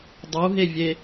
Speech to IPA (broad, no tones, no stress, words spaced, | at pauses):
dˤuɦevʲe